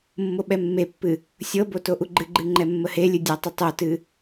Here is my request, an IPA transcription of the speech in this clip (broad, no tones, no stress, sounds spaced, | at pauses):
mː o ɓ ɛ mː e pː ɨ | sʲ ɤ b o t o ʔ u ɡ͡ǃ ɨ ɡ͡ǃ ɨ ŋ͡ǃ ɛ mː ə h e lʲ ɨ dʲ a tˤ ɘ tˤ o t ɨ